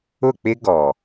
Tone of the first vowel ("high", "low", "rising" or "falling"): falling